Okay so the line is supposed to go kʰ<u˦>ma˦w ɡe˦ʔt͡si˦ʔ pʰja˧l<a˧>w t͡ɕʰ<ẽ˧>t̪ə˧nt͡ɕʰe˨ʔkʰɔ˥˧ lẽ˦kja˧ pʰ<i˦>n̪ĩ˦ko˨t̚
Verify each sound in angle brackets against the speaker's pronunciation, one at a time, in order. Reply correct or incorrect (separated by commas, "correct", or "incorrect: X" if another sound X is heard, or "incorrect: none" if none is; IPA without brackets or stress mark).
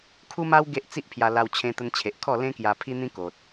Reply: correct, correct, correct, correct